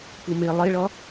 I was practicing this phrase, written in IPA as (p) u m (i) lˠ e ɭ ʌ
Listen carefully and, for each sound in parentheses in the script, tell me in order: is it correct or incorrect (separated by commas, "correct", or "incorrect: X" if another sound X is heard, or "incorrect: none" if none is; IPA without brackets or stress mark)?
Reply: correct, incorrect: e